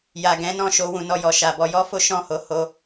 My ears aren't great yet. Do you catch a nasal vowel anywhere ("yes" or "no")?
yes